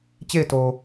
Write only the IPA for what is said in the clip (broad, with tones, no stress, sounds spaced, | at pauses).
t͡ɕ e˦˨ ɪ̯ t o˨